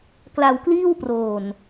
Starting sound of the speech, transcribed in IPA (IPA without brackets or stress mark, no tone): k